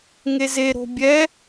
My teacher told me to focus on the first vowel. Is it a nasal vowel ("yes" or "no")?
no